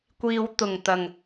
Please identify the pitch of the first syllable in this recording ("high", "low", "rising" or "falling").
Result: low